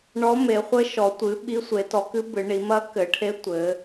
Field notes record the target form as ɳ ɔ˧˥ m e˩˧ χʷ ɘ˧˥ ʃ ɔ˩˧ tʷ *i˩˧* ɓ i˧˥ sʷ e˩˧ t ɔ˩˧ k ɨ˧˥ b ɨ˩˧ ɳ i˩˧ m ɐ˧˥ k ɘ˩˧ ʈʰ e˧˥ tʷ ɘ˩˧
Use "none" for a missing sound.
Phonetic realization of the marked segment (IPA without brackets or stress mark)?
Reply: ɨ˩˧